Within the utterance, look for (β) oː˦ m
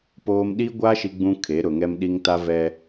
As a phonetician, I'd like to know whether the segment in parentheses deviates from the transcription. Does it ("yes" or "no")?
yes